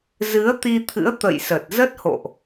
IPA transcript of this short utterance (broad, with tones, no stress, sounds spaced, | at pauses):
z ɨ˨˦ ə̯ t̪ i˧ t̪ʰ ɨ̰˧˥ ə̯ t̪ ə̰˧˨ j s ə˨˩ t̚ z ə˦˥ t̚ h o̰˧˨ ʔ